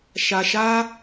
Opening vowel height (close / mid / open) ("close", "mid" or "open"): open